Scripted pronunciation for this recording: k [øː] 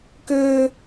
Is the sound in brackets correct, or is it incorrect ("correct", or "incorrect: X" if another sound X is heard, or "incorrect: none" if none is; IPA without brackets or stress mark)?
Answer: correct